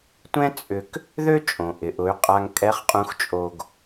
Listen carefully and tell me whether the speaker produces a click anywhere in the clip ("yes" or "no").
no